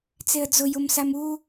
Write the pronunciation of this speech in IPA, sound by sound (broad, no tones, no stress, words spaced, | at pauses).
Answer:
t͡seə̯d͡zʊ jʊmsamu